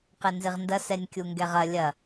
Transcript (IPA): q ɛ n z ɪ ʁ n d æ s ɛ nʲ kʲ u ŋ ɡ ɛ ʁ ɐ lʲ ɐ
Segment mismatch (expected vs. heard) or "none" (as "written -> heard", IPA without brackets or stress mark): æ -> ɐ